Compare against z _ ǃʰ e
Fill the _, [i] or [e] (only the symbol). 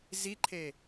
i